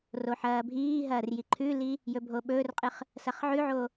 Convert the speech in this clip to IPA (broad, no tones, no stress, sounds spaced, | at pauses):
r o ħ ɐː bʱ iː ɦ ɐː r j i ǃʰ ʉ l i | j ɵ bʱ o ɓ ɵː r qʼ ɨ χ | s ɐ χ ʕ ʉ ʕ o